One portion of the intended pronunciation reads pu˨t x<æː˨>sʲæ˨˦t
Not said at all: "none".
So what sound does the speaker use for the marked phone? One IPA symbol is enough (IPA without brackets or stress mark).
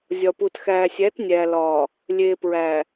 æː˨